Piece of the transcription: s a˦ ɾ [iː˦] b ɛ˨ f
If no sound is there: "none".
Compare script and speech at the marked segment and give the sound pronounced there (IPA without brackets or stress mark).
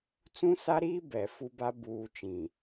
iː˦